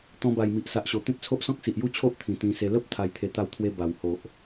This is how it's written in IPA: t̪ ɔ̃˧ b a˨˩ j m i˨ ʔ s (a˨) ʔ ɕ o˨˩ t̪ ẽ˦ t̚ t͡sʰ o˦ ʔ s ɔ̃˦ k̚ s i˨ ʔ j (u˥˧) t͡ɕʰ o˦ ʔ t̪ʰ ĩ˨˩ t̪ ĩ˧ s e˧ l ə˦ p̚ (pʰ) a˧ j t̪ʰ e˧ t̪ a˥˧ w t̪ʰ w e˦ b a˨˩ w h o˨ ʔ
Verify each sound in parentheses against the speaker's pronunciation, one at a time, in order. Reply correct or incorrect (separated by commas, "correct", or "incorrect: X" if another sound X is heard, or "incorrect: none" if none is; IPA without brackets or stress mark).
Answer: correct, correct, incorrect: t̪ʰ